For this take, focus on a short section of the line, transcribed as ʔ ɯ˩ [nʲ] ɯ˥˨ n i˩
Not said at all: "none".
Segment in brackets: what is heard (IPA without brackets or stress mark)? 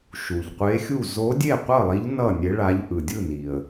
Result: dʲ